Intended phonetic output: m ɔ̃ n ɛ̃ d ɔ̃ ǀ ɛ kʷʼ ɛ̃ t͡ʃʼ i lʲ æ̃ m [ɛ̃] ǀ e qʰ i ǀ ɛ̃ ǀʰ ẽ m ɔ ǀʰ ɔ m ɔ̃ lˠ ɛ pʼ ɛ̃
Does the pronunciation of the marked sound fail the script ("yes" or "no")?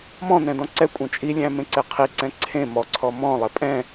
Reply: yes